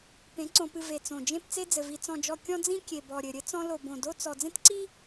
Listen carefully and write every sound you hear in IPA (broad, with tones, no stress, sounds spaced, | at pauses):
p ẽ˨˦ ǀ õ˨ p ɨ˨ v e˨ t͡s õ˨ d͡ʒ ẽ˦ p t͡s e˦ d͡z ɘ˨ v i˨ t͡s ɔ̃˨ d͡ʒ ɔ˨ kʲ ɔ̃˦ d͡z ĩ˦ kʲ e˨ b ɔ˨ ɾʲ ɘ˨ ɾʲ ɘ˦ t͡s ɔ̃˦ l o˨ b õ˨ d o˦ t͡s ɔ˨ d͡z ẽ˦ t ǀ i˦